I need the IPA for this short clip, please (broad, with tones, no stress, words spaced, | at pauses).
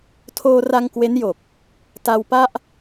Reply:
tʰoː˧ra˧ŋ kwe˦˥njo˨˩k̚ | ta˧wpa˥˩ʔ